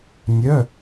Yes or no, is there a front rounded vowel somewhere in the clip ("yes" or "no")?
yes